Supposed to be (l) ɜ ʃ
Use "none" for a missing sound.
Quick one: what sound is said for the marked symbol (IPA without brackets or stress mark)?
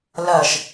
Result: l